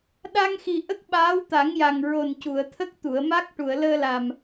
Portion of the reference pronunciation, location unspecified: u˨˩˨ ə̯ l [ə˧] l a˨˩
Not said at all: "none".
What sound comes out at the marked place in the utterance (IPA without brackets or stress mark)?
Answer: əː˧